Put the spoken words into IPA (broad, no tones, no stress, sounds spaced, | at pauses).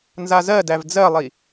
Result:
n z a z ɜ d æ v d͡z ɜ lˠ i